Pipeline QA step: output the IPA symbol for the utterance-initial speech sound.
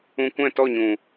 ũ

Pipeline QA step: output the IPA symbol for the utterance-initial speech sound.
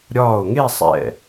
ɾʲ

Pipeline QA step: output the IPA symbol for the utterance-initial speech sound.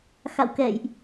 x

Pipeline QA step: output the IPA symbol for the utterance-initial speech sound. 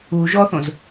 u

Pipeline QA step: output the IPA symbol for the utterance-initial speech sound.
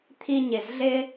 t̪ʰ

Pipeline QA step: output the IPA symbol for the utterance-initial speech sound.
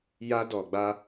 j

